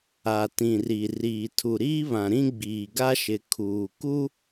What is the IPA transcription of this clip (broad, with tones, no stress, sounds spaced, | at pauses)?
a˨ t ĩ˨ r i˨ r iː˨ tʰ u˨ ɾ iː˦ β ã˨ ɾ ĩ˦ ɡ͡b iː˨ ɡ a˦ ʃ ɪ˨ kʰ uː˨ k u˦